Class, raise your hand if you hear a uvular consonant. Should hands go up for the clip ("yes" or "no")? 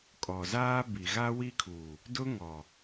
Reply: no